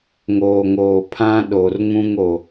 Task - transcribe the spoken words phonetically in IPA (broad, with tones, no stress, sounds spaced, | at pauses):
ŋ oː˨ ŋ oː˨ pʰ ã˦ ɗ o˨ r ŋ ũ˦ ŋ o˨